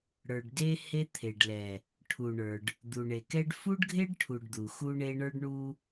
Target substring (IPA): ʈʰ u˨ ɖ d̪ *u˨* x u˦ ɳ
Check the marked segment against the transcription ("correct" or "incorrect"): correct